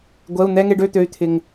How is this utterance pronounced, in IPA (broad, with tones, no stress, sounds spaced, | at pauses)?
ɡʷ ɛ˩˧˩ u̯ n̪ ɛ˧˥˧ ŋ e˥˧ ɖ ø˧˥˧ t̪ ø˩˧˩ y̯ t̪ʰ ɪ˩ ŋ